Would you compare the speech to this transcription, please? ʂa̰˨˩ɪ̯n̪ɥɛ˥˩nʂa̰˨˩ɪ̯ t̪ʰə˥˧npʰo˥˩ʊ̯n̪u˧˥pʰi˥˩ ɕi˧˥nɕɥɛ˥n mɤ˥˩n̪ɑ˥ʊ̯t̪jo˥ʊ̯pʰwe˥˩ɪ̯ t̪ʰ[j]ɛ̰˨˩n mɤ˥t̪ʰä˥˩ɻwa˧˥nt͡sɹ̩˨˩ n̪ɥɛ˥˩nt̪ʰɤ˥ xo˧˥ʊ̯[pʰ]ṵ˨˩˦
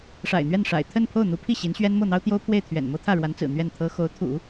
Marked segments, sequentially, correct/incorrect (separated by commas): incorrect, incorrect